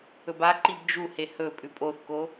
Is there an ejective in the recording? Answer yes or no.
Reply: yes